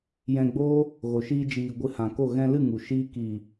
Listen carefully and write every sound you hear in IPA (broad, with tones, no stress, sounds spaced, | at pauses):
j ɛ̃˧ ɡ͡b oː˦ | ɣ o˨ ʃ iː˧ d͡ʒ iː˨ ɡʷ ɨ˧ h ã˨ k o˦˨ ɣ ɛ̃˧ l ɨ˦˨ ŋ u˨ ʃ iː˦ k iː˨